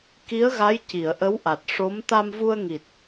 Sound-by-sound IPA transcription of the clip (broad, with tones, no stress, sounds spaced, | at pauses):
k i˧˥ ə̯ ɣ a˧˥ j c i˨˩˨ ə̯ ʔ ə˧˥ w ʔ a˨˩ t̚ ʂ o˧˥ m t̪ a˧ m v u˧ ə̯ ŋ i˨˩ t̚